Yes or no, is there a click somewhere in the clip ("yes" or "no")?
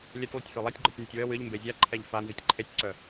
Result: yes